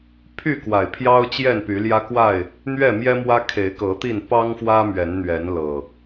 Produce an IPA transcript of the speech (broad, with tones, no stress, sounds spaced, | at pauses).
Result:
pʰ y˥˨ k w a˨˩ ɪ̯ pʰ j ɑ˦ ʊ̯ t͡ɕ j ɛ˥˨ n p y˨˦ l j ä˦ k w a˥˨ ɪ̯ | n̪ ɥ ɛ˥˨ m j ɛ˦ m w ä˦ kʰ e˨˦ ɪ̯ k ɤ˨˦ t̪ i˥˨ n p ɑ˦ ŋ f w ä˦ m ɥ ɛ˨˦ n n̪ ɥ ɛ˨˦ n l ɤ˨˩